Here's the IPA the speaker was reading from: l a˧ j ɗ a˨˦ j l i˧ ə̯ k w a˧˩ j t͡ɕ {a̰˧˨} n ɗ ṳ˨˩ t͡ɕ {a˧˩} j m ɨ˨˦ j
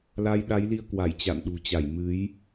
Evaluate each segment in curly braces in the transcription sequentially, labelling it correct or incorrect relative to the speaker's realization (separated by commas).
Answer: correct, correct